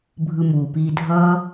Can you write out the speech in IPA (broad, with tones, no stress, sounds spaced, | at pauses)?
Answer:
bʱ ɯ˧ m uː˨ p iː˧ dʱ ʌː˦